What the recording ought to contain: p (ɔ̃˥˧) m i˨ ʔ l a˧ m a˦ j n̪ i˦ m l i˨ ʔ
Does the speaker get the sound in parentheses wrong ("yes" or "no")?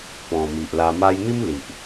yes